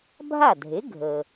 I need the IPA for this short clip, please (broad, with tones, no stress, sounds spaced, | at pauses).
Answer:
bʱ a˥˩ dʱ e˩˥ ɡʱ ə˩